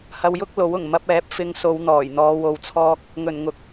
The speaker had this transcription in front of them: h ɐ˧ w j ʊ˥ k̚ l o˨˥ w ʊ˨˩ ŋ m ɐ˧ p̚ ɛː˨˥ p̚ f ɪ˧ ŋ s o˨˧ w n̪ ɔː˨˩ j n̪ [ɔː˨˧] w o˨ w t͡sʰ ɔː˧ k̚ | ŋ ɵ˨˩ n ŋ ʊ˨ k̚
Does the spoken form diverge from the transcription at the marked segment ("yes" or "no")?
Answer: no